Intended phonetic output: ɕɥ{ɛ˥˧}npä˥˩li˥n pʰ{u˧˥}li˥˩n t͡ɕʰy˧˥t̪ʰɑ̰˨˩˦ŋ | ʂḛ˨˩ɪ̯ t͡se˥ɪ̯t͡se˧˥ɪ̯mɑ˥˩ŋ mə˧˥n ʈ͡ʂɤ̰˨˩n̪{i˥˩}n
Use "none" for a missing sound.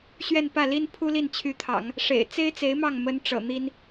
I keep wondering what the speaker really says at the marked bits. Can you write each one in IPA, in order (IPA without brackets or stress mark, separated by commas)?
ɛ˥˧, u˥, i˥